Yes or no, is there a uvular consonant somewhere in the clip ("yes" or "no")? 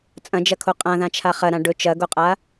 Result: yes